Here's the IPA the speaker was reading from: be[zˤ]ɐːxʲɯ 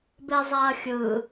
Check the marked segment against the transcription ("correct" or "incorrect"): correct